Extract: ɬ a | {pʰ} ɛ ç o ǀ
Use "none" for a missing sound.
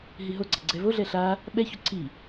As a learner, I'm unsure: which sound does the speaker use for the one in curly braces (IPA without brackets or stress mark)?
ɓ